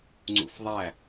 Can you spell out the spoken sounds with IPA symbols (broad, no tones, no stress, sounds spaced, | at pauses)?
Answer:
ŋ͡ǀ ṵ f ðˤ æ